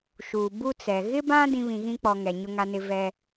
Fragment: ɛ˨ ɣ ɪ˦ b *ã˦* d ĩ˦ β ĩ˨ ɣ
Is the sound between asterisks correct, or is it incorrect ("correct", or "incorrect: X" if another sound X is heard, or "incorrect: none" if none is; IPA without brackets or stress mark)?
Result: correct